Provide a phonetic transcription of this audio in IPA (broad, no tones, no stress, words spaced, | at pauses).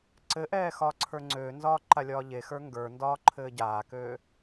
ǀɘʔɛː xɒːǀʰə˞ŋ͡ǀøːnzɒː ǃalʲɒːʎexə˞ ŋɡə˞ndɒː ǃʰɘːɟaːkøː